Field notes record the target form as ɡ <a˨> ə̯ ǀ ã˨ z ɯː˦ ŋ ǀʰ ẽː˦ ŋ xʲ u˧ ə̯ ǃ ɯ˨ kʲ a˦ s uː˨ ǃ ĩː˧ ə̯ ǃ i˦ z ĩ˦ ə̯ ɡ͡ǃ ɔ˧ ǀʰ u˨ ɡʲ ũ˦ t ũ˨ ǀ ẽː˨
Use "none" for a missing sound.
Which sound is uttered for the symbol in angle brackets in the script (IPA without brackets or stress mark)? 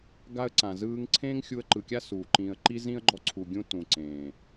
a˦